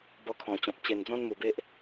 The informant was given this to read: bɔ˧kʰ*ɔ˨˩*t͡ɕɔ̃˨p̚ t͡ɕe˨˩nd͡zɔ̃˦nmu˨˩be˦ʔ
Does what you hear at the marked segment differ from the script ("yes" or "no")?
yes